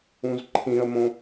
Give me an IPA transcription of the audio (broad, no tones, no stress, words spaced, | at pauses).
ũzǃʰĩə̯mõ